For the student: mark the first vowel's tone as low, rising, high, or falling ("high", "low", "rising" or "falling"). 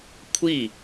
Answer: falling